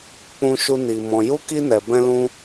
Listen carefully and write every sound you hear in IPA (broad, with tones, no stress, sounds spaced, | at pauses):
k͡p ũ˦ ʃ u˦ n i˧ m ɔ̃˧ j u˦ k i˦ n ɛ˧ b ɛ̃˦ l ũ˦